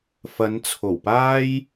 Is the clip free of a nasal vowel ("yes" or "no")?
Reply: yes